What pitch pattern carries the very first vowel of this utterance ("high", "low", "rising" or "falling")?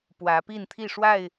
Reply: rising